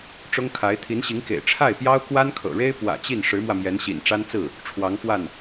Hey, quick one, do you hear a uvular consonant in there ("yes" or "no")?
no